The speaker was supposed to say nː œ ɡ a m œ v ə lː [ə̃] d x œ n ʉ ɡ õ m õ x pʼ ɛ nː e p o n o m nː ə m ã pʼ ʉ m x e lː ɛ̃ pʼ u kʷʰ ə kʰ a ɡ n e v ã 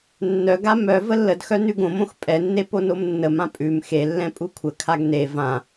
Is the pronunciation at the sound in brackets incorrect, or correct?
incorrect